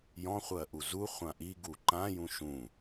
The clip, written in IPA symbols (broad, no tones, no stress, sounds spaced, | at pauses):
j ɔ̃ χʷ ɜ ʔ u z u χʷ ã ʔ i ɡ u ǃ ã j ũ ʃ ũ